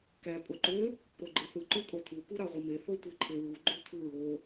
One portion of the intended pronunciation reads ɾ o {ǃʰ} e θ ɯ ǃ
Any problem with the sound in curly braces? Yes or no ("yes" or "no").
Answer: yes